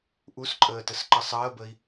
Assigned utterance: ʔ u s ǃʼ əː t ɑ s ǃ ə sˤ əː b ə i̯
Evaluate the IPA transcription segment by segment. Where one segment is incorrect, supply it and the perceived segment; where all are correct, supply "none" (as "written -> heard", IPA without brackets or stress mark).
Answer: ɑ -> ə